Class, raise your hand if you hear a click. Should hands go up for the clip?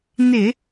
no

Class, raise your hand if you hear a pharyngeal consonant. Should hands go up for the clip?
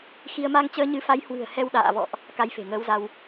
no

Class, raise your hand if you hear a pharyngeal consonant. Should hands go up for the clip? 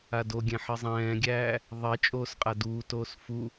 yes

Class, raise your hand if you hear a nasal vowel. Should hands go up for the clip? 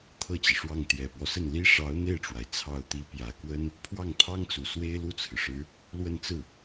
no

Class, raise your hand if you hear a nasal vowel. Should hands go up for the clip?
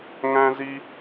yes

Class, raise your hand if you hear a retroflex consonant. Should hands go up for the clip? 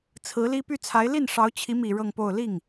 yes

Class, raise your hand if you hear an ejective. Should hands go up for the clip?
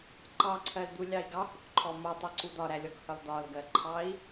no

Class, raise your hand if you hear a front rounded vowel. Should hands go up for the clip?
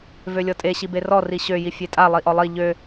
yes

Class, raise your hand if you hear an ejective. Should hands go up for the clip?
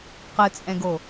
yes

